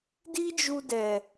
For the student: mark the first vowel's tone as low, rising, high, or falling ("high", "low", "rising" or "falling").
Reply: high